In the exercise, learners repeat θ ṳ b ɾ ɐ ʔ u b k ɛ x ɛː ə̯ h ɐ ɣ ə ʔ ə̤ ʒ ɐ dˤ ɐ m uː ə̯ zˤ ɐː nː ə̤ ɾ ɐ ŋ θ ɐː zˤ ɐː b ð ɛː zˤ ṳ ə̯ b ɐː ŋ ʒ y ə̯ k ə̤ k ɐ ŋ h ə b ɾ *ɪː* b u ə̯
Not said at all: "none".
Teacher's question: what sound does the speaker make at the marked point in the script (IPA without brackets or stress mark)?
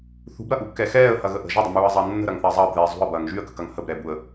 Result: ɛː